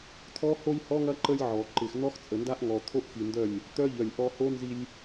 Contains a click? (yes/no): yes